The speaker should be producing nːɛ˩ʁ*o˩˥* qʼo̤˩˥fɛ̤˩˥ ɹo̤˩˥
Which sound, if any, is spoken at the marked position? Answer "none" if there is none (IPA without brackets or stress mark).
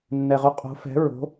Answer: o˩˥